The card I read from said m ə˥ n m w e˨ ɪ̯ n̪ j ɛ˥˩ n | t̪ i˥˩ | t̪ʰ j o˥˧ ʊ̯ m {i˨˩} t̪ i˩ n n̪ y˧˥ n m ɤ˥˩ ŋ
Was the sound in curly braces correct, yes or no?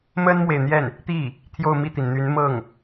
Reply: no